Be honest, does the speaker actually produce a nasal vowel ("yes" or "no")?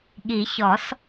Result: no